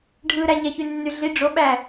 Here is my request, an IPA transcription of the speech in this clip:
ɖʱ ɯ ɾ æ ɲ æ ç y nː y ɮ i ɖ͡ʐ o ɓ æ

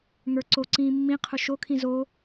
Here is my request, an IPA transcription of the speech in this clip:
ŋ ə˞ ǀ o ǀ ĩː mː ĩ qʰ ʊ ʃ o kʰ ĩ z o

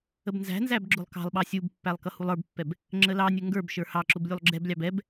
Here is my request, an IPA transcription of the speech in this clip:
ə b n z æ̤ n z æ b ɡ͡ǁ ʊ lˠ k ɑ̤ lˠ ɓ ɑ sʲ u b pː æ lˠ k ʌ h u lˠ ə˞ b pː ɛ b | ŋ͡ǁ ə l ɑ nʲ ə ŋ ɡ ə˞ b ʃ ə˞ h ɑ ǁ ʊ b lʲ u lˠ ɡ͡ǁ ɛ b lʲ ɑ b ɛ b

